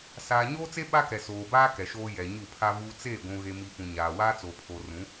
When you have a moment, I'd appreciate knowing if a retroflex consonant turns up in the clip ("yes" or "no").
no